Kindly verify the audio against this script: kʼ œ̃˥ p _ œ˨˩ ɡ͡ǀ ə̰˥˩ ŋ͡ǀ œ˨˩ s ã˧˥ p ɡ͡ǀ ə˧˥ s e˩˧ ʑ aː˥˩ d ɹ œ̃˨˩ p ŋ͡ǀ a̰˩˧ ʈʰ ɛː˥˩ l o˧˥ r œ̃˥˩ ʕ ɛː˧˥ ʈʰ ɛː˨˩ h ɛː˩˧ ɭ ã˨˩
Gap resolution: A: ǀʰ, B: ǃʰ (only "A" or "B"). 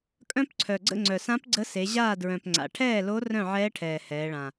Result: A